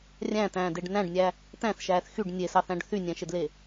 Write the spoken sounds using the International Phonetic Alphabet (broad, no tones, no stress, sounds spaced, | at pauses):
rʲ æ̃ t æ̃ː d e ɖ n æ̃ ɖ nʲ æ | t æ̃ θ ʃ æː θ x y ɖ nʲ e s ɑ θ æ̃ ɖ θ y nʲ æ̃ ʃ e d l e